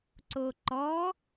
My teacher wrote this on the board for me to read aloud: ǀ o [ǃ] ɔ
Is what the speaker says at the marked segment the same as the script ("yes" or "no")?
yes